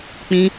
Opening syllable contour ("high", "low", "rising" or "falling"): high